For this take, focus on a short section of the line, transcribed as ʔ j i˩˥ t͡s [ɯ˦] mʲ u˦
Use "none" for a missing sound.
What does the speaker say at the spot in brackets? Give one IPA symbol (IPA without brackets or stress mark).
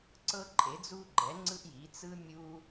ɯ˦